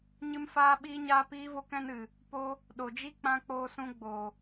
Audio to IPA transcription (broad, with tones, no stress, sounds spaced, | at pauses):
ɲ ɨ˦ m f aː˦ ɓ iː˦ ɲ aː˦ p iː˦ v o˦ k ɛ̃˦ n ɨ˨ | p o˦ | ɗ o˨ d͡ʒ i˦ k͡p ã˧ k͡p oː˧ s ũ˧ ɡ͡b oː˨